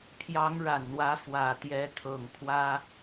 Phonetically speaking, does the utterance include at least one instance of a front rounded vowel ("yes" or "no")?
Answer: no